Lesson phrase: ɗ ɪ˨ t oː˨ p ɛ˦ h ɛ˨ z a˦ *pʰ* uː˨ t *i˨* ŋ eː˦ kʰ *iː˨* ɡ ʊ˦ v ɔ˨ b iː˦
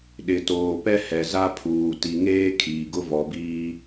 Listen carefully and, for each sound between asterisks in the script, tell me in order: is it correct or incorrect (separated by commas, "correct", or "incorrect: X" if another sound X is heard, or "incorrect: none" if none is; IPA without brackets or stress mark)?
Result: correct, correct, correct